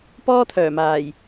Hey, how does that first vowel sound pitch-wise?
high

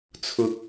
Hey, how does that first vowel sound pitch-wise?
high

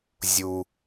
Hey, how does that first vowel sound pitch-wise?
low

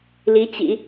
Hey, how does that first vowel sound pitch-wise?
rising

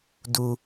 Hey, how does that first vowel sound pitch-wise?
low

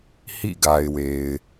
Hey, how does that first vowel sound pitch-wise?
falling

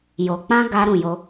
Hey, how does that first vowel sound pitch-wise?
low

